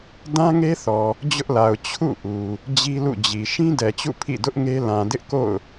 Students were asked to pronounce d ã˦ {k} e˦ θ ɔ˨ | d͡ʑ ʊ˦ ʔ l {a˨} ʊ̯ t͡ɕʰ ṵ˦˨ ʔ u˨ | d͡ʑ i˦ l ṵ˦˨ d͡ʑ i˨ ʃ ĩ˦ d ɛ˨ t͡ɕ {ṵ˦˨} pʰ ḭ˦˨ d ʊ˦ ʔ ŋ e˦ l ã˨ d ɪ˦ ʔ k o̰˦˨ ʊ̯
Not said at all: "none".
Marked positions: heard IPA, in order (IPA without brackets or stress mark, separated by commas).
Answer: ŋ, a˨, ṵ˦˨